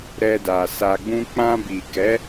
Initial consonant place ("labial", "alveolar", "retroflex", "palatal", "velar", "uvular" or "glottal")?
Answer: alveolar